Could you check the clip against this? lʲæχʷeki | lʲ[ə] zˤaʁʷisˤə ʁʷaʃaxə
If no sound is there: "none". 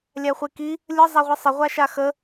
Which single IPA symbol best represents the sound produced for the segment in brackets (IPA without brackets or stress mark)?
ə